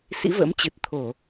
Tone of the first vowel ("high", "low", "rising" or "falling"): rising